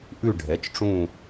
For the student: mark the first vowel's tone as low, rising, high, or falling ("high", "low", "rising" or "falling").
falling